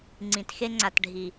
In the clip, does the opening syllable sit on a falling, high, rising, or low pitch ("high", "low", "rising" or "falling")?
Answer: low